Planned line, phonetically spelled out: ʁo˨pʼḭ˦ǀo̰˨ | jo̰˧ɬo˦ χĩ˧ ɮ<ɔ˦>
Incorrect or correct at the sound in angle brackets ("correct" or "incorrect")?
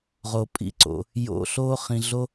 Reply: incorrect